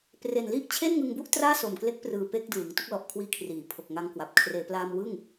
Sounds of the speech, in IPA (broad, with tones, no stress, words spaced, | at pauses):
pre˨˩nli˥˩ʔ t͡ɕʰe˥˩nŋɯ˧ŋbu˥˩ʔ traː˥˩so˨˩mkle˦˥k̚prɯː˨˩ pe˥˩k̚dɯː˩˦ŋ tu˦˥k̚lɔ˨˩ʔkʰwiː˦˥kʰriː˩˦ pʰo˨˩k̚ŋa˧ŋkwa˨˩p̚ kʰreː˩˦plaː˧m wɯ˥˩ŋ